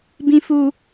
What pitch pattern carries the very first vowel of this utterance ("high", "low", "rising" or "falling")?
high